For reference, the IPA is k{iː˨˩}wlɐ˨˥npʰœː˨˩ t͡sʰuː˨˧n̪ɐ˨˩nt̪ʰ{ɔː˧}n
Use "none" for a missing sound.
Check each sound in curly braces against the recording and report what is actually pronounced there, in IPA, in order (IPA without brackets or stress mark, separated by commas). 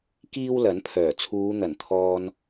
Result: iː˥, ɔː˧